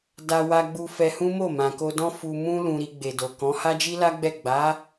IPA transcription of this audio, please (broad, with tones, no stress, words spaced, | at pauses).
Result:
da˧wa˧ɡ͡bu˧ fɛ˧hũ˦mo˦˨ mã˨ko˧dɔ̃˦ fu˧ mũ˦ lũ˧ɾi˧ɡ͡be˨do˨ kɔ̃˨˦ ha˦d͡ʒi˦la˦ɡ͡bɛ˦˨ ɡ͡ba˨˦